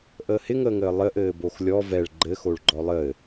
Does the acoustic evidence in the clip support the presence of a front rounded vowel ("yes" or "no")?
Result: no